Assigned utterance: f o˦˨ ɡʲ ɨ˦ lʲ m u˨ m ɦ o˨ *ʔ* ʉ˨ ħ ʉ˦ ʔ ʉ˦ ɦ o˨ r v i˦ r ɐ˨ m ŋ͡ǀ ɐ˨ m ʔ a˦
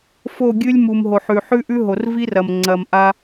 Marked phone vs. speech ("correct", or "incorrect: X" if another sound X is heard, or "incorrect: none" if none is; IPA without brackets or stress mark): incorrect: ħ